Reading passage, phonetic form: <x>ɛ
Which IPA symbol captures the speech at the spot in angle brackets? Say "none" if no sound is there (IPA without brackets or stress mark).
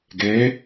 ɡ